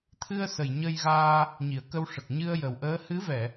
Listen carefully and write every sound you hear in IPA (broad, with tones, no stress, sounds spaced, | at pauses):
t̪ʰ ɨ˧ ə̯ s ə˨˩ j ɲ ə˧ j ɣ aː˧ | ɲ i˨˩˨ ə̯ k ə˧ w ʂ ə˨˩ k̚ ɲ ɨ˧ ə̯ j ə˨˩ w ʔ əː˧˥ h ɨ˧˥ v ɛ˨˩˨